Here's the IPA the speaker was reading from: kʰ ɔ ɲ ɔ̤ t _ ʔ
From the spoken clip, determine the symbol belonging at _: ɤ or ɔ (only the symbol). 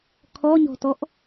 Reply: ɔ